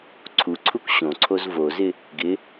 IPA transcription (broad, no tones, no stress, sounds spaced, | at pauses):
ǀʰ u ǀʰ u k ɕ õ ǀʰ o z v o z ɪ | ɡ ɪ